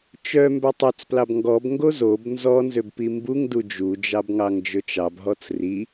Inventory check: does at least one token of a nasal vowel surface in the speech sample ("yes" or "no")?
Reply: no